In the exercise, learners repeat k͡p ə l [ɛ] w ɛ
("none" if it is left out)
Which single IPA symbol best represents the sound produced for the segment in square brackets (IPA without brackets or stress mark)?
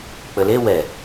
e